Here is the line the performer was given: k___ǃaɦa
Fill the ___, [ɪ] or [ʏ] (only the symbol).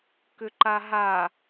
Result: ʏ